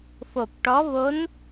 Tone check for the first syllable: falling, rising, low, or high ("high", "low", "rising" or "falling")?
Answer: low